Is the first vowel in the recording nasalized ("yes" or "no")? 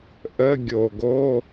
no